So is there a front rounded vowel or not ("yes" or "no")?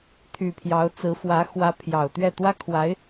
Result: yes